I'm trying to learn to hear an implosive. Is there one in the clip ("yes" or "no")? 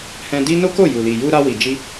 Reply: no